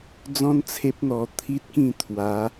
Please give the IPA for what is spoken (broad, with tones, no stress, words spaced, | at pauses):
d͡zɔ̃˦nt͡sʰe˦p̚n̪ɔ˧ t̪ʰi˦t̚kĩ˥˧ t̪ʰwa˨˦